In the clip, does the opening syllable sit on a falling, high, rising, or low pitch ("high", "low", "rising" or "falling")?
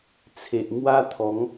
low